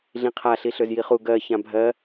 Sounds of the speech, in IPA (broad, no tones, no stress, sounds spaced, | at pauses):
ɮ ĩ qʰ a ɬ i ɬ ø z j i χ u ɡ ɜ ç ã bʱ ɜ